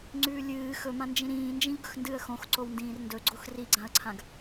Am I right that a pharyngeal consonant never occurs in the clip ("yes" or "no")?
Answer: yes